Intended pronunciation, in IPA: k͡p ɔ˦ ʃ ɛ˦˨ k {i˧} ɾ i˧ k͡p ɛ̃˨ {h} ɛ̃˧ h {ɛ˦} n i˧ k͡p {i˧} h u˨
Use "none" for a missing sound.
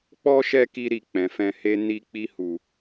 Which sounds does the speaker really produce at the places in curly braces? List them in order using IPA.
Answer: i˧, f, e˦, i˧

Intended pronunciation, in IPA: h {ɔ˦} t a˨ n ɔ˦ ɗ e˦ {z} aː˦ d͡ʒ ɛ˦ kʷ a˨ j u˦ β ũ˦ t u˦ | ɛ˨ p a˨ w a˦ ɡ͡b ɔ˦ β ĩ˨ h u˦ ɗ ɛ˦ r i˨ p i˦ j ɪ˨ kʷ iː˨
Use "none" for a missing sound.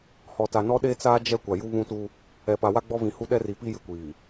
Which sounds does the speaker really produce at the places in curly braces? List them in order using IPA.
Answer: ɔ˨, t͡s

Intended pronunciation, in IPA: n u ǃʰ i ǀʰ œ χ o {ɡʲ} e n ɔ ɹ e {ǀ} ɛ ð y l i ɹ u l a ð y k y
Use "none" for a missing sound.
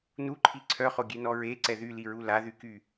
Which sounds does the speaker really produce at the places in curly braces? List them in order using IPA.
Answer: ɡʲ, ǀ

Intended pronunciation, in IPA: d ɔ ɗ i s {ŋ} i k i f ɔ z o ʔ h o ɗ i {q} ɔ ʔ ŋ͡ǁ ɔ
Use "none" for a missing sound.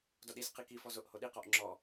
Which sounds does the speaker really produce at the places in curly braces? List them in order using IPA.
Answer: q, q

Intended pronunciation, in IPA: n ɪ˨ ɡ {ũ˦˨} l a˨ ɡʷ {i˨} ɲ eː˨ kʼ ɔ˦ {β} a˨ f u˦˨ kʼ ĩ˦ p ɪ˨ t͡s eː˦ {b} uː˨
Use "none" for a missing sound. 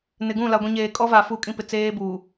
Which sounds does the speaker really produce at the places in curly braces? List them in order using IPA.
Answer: ũ˦˨, ĩ˨, v, b

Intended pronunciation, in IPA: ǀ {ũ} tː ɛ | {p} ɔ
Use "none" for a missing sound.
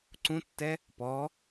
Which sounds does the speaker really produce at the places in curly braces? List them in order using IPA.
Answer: ũ, p

